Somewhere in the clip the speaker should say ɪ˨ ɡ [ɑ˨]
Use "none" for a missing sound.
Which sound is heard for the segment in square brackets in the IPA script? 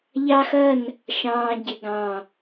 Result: ɑ̃˨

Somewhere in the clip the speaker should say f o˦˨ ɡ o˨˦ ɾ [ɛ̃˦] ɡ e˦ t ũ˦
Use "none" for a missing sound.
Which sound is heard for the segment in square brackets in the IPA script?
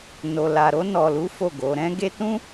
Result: ɛ̃˦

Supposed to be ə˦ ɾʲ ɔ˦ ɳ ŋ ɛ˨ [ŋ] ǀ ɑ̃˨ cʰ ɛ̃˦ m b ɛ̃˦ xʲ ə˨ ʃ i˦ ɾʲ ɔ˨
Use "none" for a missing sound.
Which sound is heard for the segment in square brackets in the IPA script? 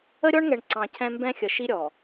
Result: ɳ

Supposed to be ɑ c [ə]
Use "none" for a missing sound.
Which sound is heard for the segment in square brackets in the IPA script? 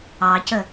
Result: ə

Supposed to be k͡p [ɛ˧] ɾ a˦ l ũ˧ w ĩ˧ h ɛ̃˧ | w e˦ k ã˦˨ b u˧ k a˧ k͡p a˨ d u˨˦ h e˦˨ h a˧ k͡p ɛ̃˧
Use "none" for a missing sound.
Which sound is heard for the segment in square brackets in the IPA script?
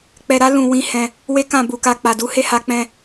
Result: ɛ˧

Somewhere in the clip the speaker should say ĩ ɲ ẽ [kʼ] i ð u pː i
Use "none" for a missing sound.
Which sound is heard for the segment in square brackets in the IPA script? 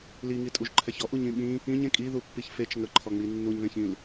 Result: kʼ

